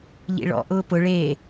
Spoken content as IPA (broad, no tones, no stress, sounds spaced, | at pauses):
ʎ ḭ ɭ ɔ̰ ʔ ʊː p ʊ ɭ eː